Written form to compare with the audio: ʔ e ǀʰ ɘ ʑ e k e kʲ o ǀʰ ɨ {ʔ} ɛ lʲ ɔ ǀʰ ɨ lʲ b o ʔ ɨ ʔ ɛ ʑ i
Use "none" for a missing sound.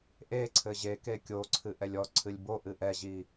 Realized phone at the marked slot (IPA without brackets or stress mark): ʔ